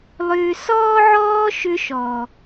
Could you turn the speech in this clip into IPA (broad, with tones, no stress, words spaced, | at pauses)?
lˠʏː˧ sɔː˦ʕɔː˦ ʃʏ˦ʃɔ˨